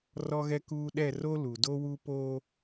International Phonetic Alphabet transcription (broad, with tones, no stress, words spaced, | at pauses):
rɔ˦ɣɛ˦kuː˦ ɗɛ˦˨ro˦lu˨ do˦wu˦po˦